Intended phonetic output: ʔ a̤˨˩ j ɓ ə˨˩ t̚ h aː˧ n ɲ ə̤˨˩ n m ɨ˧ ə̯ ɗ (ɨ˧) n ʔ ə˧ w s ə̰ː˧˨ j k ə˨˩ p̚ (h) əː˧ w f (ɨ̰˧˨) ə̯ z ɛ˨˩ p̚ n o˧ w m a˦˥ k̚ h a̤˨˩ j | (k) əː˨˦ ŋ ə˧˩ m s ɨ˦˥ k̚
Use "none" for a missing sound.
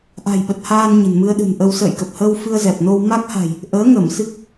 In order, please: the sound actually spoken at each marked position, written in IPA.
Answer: ɨ̤˨˩, h, ɨ˧, ʔ

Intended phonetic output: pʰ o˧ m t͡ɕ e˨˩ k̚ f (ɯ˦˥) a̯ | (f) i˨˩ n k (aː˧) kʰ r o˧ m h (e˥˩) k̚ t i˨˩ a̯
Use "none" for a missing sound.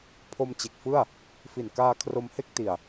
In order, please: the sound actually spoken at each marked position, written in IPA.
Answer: ɯ˥˩, f, aː˧, e˥˩

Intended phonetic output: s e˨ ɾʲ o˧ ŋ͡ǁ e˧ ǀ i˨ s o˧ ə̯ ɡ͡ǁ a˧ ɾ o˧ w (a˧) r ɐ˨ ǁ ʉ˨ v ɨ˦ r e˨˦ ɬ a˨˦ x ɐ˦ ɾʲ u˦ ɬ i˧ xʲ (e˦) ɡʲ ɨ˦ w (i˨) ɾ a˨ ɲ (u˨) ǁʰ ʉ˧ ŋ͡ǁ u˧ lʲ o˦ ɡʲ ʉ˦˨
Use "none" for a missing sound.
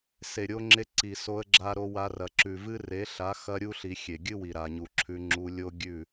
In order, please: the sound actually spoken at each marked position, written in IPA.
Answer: a˧, e˨, i˨, u˨

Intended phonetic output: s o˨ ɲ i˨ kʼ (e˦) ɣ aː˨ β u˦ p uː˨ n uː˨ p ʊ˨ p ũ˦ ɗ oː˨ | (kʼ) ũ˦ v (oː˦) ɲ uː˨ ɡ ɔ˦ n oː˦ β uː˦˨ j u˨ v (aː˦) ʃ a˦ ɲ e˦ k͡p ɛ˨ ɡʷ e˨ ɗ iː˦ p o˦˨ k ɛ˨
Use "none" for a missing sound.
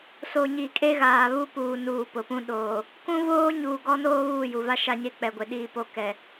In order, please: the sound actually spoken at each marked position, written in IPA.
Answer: e˦, k, oː˦, a˦

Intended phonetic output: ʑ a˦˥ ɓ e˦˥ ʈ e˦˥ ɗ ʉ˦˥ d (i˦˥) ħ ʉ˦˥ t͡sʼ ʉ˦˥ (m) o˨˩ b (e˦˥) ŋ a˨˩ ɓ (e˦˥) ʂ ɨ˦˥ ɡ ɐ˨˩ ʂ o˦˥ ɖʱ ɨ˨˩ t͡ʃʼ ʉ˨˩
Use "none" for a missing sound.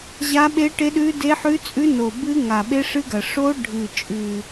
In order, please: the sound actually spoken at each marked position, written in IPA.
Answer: e˦˥, n, ɨ˦˥, e˦˥

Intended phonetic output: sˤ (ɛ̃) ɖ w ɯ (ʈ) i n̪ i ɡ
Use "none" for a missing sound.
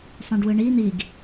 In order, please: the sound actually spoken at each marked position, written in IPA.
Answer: ɛ̃, ɳ

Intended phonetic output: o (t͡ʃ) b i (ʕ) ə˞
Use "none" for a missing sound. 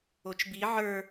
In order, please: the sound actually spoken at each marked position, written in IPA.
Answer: t͡ʃ, ʕ

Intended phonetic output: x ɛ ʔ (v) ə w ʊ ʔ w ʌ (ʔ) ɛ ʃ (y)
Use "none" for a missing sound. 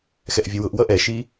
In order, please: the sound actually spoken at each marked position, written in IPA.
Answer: vʲ, ʔ, i

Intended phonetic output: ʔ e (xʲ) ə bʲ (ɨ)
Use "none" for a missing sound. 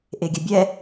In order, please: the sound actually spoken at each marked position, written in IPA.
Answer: ɡʲ, ɛ

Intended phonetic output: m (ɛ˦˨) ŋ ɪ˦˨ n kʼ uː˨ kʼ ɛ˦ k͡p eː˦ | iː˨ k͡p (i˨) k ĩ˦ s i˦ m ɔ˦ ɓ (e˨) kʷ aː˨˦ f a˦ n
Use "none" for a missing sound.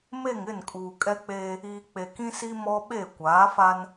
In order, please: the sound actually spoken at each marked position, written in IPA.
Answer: e˦˨, e˨, e˦˨

